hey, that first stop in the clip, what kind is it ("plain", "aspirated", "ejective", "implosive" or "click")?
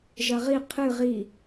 aspirated